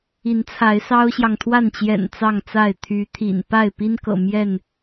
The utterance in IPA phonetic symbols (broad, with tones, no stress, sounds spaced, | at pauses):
i˨˦ n t͡sʰ a˨˦ ɪ̯ s ɑ˦ ʊ̯ ɕ j ɑ˨ ŋ t̪ʰ w a˥˨ n t͡ɕ j ɛ̰˨˩ n t͡s ɑ˥˨ ŋ t͡s a˥˨ ɪ̯ t̪ʰ y˨˦ t̪ʰ ḭ˨˩ n p a˥˨ ɪ̯ p i˦ n k ɤ̰˨˩ m j ɛ˥˨ n